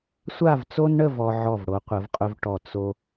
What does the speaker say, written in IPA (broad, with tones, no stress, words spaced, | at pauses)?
sʷa˥˧vt͡so˥nɳə˥˧v ɔ˧ʕɔ˧˩vɽo˩˧ qʷə˩˧vqʼʊ˧vʈɔ˧˩ t͡so˧